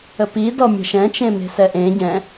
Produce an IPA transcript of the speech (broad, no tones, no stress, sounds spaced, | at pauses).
ə p i d ɔ mʲ ə̤ ʃ ɛ̃ t͡ʃ ẽ m e̤ s ɛ ʔ ẽ ɟ ɛ̃